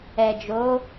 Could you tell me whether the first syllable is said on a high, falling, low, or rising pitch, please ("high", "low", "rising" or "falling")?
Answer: low